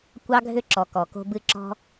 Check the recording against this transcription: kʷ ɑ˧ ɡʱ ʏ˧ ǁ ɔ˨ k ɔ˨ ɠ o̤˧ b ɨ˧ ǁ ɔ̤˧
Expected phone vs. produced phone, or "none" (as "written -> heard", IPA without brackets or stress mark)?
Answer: ɠ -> k